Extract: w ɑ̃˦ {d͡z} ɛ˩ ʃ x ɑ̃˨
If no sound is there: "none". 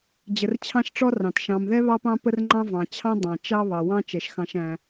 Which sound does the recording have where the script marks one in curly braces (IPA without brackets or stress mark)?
t͡ʃ